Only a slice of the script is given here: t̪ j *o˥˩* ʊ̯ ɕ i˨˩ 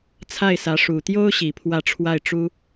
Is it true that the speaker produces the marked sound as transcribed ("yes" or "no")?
no